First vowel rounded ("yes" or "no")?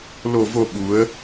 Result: yes